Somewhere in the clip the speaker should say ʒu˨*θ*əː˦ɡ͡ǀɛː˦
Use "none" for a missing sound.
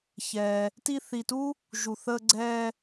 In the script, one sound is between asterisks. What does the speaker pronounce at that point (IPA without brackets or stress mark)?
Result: θ